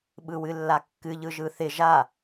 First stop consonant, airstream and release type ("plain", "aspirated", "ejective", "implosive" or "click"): implosive